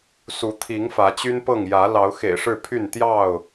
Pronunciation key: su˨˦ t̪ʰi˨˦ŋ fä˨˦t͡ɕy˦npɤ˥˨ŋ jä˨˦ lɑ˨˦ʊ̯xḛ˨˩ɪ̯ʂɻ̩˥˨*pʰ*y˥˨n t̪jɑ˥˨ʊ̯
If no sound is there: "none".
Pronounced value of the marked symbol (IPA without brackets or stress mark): pʰ